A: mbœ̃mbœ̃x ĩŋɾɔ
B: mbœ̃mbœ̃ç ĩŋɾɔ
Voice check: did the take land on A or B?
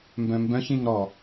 B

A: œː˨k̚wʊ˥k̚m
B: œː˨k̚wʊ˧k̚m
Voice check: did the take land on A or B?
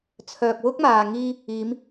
A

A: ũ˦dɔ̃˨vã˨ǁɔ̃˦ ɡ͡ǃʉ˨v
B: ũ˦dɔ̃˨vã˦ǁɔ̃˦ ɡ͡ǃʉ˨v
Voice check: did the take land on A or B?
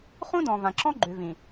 A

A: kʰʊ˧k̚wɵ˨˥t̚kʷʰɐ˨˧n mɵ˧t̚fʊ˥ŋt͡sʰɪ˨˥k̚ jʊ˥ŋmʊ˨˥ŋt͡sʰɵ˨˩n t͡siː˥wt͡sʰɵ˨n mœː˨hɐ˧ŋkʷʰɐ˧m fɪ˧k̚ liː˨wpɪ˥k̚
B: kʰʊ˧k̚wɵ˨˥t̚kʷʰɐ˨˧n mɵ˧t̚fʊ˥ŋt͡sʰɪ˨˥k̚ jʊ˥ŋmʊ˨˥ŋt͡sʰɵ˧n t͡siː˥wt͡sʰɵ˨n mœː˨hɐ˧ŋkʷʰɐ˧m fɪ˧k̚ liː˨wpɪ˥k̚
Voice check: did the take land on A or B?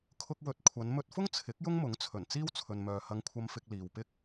A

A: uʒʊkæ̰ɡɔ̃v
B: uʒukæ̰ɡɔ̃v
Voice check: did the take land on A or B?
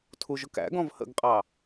A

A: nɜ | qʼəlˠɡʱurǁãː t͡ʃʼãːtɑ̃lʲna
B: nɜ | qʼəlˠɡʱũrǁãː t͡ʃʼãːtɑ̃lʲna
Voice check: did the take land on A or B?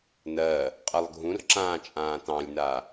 B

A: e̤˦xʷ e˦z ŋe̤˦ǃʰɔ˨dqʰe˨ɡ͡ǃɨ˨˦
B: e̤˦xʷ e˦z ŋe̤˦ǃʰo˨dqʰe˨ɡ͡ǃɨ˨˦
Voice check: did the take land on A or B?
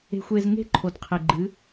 B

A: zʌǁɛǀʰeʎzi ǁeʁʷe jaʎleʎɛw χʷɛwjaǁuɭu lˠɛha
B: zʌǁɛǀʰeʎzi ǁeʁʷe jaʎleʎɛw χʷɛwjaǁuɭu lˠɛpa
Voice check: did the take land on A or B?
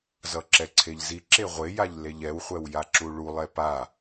B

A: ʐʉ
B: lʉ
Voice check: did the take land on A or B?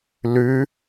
B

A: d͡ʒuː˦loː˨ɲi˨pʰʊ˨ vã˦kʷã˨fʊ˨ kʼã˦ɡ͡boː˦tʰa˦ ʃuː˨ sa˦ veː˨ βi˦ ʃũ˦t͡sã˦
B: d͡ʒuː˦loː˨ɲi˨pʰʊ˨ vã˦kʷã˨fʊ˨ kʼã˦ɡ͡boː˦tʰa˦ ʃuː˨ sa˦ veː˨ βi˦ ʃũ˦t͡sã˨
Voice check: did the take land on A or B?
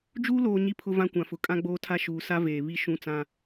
A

